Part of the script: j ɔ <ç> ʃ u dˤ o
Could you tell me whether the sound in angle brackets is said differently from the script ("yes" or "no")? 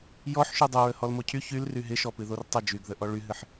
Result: yes